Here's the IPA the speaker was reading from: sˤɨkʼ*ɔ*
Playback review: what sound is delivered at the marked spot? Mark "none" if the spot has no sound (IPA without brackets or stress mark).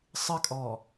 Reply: ɔ